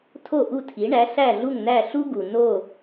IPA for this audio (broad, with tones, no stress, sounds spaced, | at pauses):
tʰ o˥˩ ʔ u˥˩ tʰ i˩˥ ɳ æ˩˥ ɬ æ˥˩ ɮ u˥˩ ŋ n æ˥˩ ɬ u˥ ɡ u˩ n o˥˩